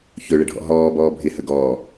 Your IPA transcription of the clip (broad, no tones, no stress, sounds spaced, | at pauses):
ç ɵ ɭ ə ɖʱ ɔ̰ ɦ ɔː b ɔː bʱ ɪ h ə ɡ ɔː